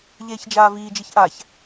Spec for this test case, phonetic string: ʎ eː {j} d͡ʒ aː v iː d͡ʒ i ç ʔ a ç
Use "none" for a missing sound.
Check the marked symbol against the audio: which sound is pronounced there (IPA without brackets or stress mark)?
ç